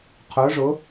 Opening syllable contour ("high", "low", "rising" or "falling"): rising